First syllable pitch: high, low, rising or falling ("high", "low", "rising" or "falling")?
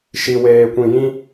low